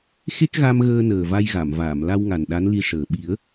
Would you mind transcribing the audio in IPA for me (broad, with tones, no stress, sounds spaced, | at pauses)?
x e˦˥ k̚ ɣ a˧ m ɣ əː˧ n əː˨˩ v a˧ j ɣ a˨˩˨ m v aː˨˩˨ m l a˧ w ŋ a˨˩ n ɗ a˧˥ n l i˧˥ ʂ əː˨˩ ɓ i˨˩˦ ə̯